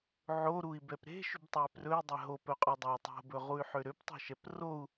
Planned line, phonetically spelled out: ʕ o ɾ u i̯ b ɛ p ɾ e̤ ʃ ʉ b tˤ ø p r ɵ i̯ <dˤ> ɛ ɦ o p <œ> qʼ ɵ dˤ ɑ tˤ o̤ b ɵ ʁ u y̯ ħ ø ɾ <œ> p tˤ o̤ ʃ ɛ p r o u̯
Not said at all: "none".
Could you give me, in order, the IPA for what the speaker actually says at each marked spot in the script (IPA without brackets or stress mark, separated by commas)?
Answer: dˤ, œ, ø